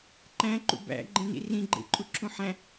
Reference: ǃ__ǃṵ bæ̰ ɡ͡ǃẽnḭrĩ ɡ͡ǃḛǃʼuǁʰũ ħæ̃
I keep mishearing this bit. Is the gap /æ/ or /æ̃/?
æ̃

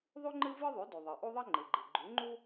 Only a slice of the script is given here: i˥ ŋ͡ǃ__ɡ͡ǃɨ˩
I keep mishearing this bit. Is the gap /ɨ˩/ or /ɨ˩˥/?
ɨ˩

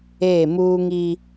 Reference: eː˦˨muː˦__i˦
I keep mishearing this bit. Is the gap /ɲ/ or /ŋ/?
ŋ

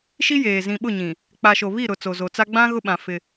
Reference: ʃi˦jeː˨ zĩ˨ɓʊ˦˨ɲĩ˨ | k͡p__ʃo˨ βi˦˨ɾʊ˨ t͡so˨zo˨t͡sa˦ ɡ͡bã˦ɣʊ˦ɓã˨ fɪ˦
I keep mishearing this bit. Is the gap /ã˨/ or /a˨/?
a˨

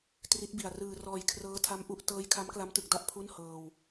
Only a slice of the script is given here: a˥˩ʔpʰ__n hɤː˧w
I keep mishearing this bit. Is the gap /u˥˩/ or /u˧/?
u˥˩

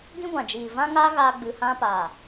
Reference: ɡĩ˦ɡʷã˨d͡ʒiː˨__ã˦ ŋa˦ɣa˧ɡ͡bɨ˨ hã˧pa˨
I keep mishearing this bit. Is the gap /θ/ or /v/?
v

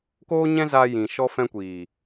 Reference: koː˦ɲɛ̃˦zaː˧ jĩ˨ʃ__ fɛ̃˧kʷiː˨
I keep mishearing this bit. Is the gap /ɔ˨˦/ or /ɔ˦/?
ɔ˦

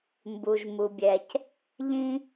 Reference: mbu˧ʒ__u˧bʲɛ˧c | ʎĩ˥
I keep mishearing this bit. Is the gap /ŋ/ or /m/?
m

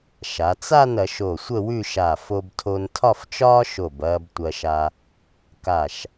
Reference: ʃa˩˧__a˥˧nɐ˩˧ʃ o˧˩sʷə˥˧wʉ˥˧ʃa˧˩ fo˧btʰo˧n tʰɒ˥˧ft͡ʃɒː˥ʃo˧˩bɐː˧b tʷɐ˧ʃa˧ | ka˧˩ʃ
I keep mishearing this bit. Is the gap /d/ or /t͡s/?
t͡s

